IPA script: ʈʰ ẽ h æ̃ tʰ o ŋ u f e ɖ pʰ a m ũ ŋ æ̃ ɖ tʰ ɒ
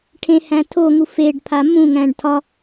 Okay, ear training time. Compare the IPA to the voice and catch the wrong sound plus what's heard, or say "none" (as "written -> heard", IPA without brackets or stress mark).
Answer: none